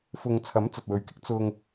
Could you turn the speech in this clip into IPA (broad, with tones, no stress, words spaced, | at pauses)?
fʊ˨ŋt͡sʰɐ˨˥m t͡sɐ˨t̚wɵ˨˧ɥkɪ˥k̚ t͡sʊ˧ŋ